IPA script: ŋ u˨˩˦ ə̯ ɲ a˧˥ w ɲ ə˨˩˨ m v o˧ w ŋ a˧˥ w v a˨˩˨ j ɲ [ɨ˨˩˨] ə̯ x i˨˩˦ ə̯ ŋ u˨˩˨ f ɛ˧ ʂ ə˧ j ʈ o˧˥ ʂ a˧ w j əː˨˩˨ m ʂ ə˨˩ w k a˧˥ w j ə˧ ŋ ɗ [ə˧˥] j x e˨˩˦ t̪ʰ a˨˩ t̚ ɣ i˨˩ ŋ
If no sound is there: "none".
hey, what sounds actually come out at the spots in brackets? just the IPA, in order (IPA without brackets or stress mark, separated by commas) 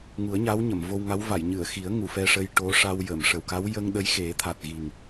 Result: ɨ˨˩˨, ə˧˥